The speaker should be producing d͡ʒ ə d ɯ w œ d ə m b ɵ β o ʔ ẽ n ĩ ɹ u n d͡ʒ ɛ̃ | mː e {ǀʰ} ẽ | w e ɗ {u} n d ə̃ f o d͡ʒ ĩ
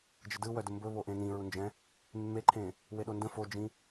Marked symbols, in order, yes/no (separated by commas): no, no